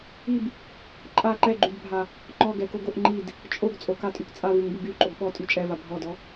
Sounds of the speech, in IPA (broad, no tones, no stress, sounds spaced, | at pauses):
i b | ǃʼ a ǃ ɛ ɡ͡ǃ y d bʱ a | ŋ͡ǃ ɔ ɡ ɛ k o ɡ o ʔ ŋ͡ǃ i d | t͡ʃʼ o ɡ t͡sʼ o k a tʼ y k t͡sʼ a v u ŋ b u ɡ y ǃʼ o ɡ ɓ ɔ tʼ y t͡ʃʼ ɛ v a bʱ ɔ d ɔ